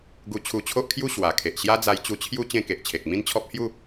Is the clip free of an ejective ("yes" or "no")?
yes